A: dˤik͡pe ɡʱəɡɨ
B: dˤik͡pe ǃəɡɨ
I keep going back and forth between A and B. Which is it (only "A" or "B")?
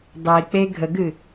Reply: A